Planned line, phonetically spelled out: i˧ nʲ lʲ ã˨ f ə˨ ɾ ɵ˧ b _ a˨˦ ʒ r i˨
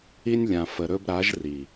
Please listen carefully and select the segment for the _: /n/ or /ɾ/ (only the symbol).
ɾ